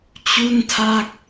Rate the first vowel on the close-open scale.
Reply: close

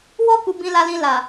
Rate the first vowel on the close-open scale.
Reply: mid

